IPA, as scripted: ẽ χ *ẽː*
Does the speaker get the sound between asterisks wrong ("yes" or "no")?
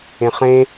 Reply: yes